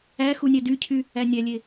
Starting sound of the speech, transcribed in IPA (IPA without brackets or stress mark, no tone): æ